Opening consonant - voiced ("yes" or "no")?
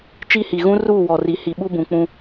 no